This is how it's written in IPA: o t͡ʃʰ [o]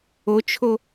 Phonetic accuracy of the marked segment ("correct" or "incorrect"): correct